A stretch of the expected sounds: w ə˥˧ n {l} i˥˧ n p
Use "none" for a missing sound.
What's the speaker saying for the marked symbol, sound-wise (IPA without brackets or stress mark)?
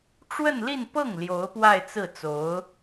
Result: l